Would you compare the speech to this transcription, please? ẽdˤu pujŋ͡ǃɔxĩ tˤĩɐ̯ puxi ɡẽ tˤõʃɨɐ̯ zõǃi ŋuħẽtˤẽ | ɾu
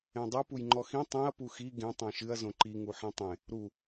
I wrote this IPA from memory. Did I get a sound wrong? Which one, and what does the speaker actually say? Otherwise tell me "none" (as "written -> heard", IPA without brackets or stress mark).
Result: none